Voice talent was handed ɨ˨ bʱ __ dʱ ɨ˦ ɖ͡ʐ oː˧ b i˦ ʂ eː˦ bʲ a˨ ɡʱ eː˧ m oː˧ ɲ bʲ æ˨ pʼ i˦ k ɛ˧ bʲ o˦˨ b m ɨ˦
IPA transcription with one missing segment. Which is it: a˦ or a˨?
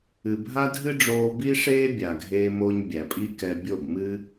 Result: a˦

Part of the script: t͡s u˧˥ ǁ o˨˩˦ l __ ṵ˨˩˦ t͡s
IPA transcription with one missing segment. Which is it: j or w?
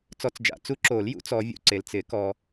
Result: j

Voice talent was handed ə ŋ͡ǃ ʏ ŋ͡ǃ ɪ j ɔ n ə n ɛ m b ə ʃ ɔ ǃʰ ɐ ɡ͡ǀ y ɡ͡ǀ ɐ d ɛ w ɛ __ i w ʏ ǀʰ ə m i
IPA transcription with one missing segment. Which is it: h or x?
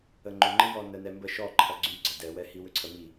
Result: h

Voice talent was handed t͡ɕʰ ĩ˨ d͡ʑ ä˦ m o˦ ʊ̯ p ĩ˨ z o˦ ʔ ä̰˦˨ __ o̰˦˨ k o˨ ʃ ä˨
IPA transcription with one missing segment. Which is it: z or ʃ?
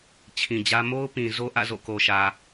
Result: z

